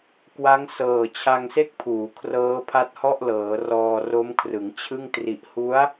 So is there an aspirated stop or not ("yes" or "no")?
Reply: yes